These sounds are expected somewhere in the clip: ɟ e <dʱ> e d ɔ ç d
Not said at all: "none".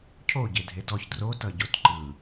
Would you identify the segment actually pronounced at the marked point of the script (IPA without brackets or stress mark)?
dʱ